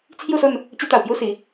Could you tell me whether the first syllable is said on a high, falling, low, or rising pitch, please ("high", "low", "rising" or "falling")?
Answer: falling